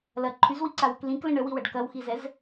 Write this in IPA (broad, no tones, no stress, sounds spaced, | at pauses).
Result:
l ɐ ǃʰ y z w i ǀ a w ə k l ĩ k l ə̃ ɳ ə w i w ɐ ɖ k ɐ w x i z ɛ z